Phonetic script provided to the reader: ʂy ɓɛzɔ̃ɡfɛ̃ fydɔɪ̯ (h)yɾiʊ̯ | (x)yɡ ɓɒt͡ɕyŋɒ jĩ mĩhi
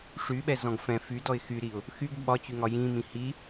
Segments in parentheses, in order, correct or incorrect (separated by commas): incorrect, correct